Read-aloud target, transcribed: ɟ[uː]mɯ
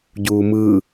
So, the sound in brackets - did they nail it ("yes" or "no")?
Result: yes